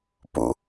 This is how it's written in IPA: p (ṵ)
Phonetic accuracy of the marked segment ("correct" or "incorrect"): correct